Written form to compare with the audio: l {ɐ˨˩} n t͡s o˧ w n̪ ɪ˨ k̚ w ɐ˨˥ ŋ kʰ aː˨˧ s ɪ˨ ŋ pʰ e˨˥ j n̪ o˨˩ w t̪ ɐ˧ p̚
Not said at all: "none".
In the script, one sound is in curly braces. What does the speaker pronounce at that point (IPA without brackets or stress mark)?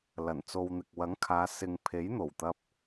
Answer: ɐ˨˩